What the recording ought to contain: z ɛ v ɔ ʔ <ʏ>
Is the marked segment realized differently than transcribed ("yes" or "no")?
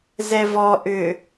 no